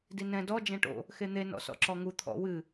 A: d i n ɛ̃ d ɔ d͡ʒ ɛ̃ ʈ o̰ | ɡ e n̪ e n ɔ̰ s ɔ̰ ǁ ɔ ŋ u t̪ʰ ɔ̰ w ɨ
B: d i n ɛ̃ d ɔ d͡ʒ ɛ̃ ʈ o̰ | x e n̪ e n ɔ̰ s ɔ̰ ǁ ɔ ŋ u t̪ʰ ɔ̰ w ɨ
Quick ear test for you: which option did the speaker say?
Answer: B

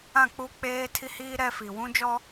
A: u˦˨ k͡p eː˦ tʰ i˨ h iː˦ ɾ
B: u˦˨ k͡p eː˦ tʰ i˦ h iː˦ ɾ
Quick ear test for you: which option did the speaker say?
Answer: B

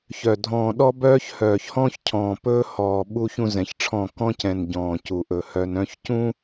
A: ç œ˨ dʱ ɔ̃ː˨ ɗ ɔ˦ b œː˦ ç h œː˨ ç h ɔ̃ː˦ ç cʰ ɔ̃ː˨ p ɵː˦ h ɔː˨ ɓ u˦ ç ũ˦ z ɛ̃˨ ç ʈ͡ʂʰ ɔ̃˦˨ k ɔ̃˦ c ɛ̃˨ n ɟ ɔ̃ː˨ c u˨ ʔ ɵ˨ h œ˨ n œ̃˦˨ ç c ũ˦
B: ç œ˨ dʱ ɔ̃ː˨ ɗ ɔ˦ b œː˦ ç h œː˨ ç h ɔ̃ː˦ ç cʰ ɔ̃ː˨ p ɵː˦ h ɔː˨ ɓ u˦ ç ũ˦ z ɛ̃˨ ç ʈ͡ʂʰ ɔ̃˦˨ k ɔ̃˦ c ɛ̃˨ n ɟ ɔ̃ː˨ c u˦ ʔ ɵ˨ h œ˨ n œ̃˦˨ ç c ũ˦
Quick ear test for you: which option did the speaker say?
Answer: A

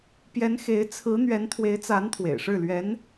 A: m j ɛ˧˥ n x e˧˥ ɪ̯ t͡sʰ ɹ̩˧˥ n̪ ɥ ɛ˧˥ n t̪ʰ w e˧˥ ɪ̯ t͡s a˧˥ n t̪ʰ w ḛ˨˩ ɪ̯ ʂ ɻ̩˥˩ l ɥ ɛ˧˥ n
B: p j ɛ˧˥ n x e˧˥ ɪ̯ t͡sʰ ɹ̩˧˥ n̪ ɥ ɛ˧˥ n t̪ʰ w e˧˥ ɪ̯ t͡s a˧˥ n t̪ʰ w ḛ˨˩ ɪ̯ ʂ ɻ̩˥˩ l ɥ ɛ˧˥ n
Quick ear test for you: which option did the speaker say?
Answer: B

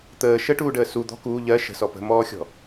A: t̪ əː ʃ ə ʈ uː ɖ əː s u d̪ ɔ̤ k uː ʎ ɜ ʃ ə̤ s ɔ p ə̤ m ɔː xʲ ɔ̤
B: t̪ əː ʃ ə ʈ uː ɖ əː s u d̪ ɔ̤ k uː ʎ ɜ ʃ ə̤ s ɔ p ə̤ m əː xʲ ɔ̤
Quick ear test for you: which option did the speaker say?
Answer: A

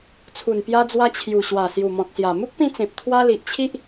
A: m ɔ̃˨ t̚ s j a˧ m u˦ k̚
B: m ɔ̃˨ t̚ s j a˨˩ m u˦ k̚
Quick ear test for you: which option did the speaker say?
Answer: B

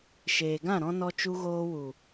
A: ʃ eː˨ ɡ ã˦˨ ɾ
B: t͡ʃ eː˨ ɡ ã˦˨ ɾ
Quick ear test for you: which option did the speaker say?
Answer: A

